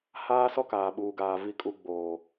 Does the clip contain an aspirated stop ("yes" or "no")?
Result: no